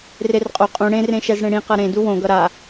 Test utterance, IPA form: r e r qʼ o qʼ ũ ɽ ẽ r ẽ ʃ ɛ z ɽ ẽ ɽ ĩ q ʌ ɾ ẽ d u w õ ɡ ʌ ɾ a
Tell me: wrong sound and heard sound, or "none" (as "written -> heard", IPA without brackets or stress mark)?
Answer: none